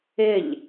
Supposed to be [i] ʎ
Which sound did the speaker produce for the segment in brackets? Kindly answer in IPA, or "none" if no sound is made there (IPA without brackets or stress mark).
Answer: ɪ